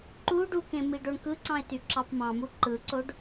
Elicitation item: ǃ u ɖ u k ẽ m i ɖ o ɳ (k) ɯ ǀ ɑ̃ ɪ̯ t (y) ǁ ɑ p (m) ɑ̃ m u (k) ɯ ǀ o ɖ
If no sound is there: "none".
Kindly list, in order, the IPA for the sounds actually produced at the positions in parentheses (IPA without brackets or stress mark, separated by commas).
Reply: k, y, m, ǃ